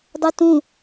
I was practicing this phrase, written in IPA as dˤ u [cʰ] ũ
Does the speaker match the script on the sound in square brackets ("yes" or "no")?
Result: no